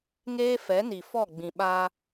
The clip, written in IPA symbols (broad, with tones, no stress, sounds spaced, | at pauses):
ŋ eː˦ f ɛ˨˦ n i˨ f ɔ˦˨ ɡ͡b ĩ˨ ɓ a˦